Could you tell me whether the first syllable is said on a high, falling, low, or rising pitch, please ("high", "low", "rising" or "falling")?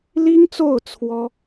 high